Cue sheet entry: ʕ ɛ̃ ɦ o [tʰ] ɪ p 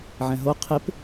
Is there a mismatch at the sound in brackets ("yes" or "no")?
yes